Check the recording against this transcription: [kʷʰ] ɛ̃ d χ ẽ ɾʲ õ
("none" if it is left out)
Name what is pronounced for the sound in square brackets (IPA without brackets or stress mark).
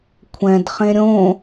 kʷʰ